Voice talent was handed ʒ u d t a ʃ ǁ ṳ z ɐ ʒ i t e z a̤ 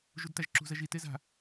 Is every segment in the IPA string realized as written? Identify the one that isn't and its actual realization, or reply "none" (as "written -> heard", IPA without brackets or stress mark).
ʃ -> ʒ